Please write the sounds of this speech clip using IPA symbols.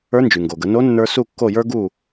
ə˞˧˥ n d͡ʒ y˩ ŋ ɡ o˩ ɡ ə˩˧ n o˧˥ nː ə˞˧ s u˥˨ kː o˥˨ j ə˞˥ ɡ u˥˨

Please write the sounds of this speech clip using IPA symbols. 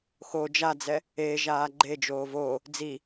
x o d͡ʒ a d͡z ɛ | e ʒ aː ɡ͡ǃ e d͡ʒ oː v o | d͡z i

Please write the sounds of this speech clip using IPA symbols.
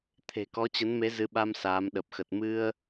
t̪ʰ e̤˨˩ k ɔ˨˦ t͡ɕ ə˨˦ n m e˨˦ z ɨ˨˦ ɓ a˧ m s aː˨˦ m ɗ ə˨˩ p̚ x ə˨˩ t̚ m ɨ˧ ə̯

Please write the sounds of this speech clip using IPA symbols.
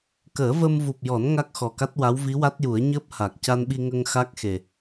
k əː˨˩˦ v ə˧ m v u˨˩ p̚ j ɔ˨˩˦ n ŋ a˦˥ k̚ x ɔ˨˩ k a˦˥ t̚ w a˧˥ w v i˧˥ w a˦˥ t̚ j u˨˩˦ ə̯ ɲ əː˦˥ p̚ h a˨˩ k̚ c a˧ n ɓ i˧ ŋ ə˧ ŋ x a˦˥ k̚ x e˨˩

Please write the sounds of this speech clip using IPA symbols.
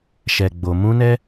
ʃ ɛ˨ ɡ͡b o˨ m ũ˧ n ɛ˦

